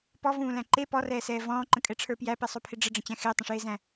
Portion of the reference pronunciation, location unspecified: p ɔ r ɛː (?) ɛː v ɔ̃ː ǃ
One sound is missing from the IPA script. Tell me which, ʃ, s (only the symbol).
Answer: s